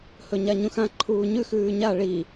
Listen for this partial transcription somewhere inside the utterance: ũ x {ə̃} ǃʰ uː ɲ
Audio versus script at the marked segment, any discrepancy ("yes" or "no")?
yes